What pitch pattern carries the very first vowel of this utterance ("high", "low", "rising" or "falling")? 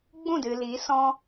falling